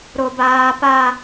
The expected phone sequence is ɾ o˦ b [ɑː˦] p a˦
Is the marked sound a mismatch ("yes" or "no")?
yes